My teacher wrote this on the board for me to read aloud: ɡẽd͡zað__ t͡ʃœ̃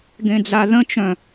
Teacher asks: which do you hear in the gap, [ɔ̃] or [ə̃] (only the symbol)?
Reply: ə̃